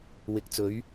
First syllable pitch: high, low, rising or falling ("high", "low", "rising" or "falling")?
rising